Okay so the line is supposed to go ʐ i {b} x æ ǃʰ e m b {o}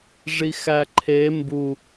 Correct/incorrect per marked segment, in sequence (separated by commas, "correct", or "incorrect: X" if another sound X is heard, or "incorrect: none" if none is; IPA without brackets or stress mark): incorrect: none, incorrect: u